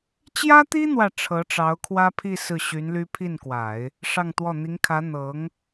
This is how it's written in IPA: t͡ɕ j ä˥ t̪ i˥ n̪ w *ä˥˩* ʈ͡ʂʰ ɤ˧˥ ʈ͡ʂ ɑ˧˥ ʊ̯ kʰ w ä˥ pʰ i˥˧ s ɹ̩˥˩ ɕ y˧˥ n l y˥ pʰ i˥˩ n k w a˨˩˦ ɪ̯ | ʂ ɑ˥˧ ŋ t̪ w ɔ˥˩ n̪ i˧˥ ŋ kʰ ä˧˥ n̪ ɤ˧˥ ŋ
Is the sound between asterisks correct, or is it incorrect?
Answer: correct